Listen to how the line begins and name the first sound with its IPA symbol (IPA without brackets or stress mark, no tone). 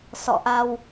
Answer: s